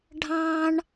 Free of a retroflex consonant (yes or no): no